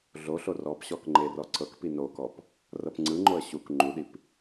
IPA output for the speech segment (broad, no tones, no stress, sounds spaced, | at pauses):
ɮ o ɬ o r ɔ p ɕ ɔ k ŋ͡ǃ e r ɔ ǀ ɤ k p i n o k ɔ p | r ɤ p ŋ͡ǀ ɯ ŋ͡ǃ o ə̯ ɕ u k ŋ͡ǃ u ɗ i p